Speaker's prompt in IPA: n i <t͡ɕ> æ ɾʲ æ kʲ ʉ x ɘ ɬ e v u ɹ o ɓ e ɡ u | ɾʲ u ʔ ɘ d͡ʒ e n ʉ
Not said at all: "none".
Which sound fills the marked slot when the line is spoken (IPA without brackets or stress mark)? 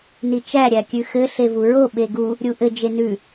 t͡ʃ